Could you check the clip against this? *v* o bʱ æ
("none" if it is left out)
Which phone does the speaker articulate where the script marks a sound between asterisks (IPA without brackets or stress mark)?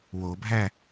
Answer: w